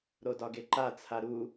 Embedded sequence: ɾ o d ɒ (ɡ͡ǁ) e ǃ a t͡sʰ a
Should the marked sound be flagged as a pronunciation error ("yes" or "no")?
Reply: yes